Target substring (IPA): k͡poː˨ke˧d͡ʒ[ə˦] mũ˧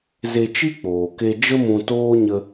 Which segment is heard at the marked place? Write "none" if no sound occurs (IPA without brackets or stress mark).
ə˦